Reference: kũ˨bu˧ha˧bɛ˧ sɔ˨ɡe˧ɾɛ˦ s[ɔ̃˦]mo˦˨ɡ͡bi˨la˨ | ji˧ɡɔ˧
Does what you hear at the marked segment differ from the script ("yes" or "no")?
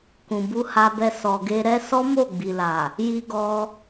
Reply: yes